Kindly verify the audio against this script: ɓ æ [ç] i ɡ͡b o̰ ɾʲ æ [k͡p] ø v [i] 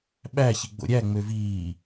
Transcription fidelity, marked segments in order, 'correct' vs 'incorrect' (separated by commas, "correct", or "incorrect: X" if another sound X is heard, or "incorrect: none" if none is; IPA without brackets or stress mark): correct, incorrect: ŋ͡m, incorrect: iː